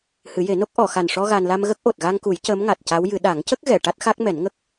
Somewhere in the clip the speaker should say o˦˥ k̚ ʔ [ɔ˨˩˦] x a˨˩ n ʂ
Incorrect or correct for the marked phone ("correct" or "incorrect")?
incorrect